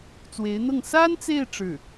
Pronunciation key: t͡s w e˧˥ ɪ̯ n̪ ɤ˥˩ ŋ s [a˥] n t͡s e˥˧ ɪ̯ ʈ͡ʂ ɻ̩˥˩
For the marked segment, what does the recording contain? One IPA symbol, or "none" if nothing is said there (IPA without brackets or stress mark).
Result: a˥